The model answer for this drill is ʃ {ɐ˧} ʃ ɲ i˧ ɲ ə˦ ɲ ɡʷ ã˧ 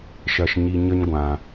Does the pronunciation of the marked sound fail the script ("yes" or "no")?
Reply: no